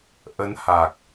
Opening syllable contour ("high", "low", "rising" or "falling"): rising